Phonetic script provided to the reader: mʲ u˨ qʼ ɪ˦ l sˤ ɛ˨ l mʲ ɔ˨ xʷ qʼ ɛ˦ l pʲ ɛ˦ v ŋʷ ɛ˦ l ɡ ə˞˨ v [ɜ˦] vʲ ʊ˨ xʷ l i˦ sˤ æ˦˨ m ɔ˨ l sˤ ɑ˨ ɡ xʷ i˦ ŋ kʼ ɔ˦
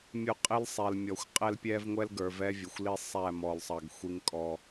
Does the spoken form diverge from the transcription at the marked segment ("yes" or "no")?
yes